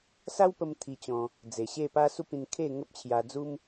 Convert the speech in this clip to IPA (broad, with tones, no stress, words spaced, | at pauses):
sa˦wpə˧m t̪ʰi˧t͡ɕɔ̃˧ | d͡ze˨˩ɕe˥˧ pa˦su˦ pĩ˧nkʰe˥˧ ŋə˦p̚t͡ɕʰja˧d͡zu˦m